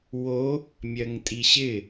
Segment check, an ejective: present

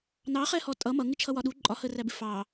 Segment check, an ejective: present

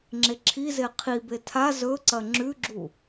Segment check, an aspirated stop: present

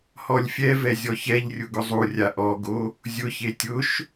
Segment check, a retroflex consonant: absent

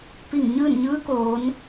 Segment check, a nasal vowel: absent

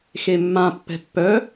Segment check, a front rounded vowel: present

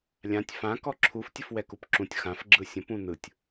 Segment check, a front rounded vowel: absent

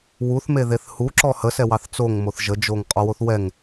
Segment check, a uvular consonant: present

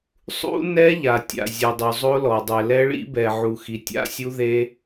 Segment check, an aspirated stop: absent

